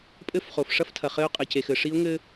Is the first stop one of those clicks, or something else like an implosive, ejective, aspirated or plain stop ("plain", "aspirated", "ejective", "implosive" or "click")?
ejective